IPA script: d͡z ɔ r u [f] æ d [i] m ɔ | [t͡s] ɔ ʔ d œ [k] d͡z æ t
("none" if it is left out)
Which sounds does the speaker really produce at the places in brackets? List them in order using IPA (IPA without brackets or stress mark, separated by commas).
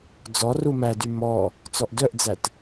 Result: m, y, t͡s, ʔ